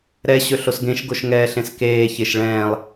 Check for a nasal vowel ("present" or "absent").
present